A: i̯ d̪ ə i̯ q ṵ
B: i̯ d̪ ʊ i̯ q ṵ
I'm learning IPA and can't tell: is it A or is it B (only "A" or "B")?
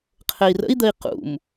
A